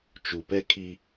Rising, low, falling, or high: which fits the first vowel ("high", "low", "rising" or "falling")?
low